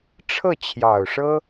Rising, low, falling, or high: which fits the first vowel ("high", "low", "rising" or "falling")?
falling